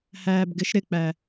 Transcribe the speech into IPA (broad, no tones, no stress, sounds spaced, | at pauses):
h æː b ɡ ɪ ʃ ɾ ɪ k͡p æ